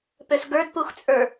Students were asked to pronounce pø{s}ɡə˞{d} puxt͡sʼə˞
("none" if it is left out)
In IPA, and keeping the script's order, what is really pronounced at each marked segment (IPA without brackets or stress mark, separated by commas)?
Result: s, d